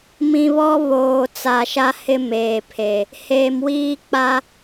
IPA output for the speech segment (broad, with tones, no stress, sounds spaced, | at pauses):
m ĩ˨ β ɔ˦ β oː˨ t͡s a˨ ʃ a˦ h ɪ˦ m eː˨ pʰ e˨ | h eː˨ m w iː˦ k͡p a˦